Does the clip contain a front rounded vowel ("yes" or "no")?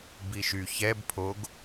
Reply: yes